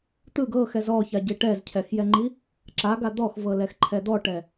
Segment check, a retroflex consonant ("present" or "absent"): present